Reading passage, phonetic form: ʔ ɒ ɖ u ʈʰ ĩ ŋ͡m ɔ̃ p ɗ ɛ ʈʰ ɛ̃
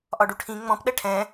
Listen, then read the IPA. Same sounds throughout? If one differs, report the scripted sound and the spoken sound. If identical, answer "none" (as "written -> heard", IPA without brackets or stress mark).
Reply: none